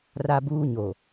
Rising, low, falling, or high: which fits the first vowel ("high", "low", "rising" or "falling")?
high